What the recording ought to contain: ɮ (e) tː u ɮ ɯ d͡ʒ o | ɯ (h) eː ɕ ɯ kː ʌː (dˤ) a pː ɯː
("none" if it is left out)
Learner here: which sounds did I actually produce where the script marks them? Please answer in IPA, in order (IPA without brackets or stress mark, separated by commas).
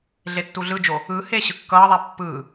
e, h, ðˤ